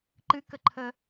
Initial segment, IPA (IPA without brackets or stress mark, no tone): ǃ